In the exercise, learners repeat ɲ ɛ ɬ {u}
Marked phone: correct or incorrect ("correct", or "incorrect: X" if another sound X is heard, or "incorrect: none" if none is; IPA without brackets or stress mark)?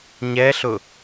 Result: incorrect: ʊ